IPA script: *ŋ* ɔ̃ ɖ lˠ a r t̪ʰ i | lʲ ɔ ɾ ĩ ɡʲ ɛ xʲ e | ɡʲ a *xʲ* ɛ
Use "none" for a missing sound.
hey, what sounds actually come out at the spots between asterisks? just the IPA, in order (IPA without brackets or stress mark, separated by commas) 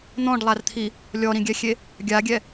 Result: n̪, ɡʲ